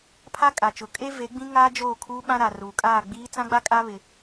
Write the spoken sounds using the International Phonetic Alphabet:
pʰ a˦ kʼ a˨ t͡ʃ ʊ˨˦ kʼ e˦ v e˨˦ ɡ͡b ĩ˦ ŋ aː˦ d͡ʒ oː˦˨ kʰ uː˦ ɓ ã˦ ɾ a˨ r uː˨ kʼ aː˦˨ ɡ͡b iː˦ t͡s ã˦ ɡ͡b a˦ kʼ a˦ β ɪ˦

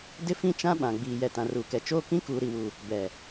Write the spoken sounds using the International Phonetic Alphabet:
d ɪ˦ f ĩ˦˨ t͡ʃ ã˦ ɓ ã˨ ɡ͡b iː˨ j ɛ˨ t ã˨ r uː˨ k ɛ˨ t͡ʃ oː˦ k ĩ˦ k uː˨ ɾ i˨ w u˨ | b ɛ˨

